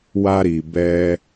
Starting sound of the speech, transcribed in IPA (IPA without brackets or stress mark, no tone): w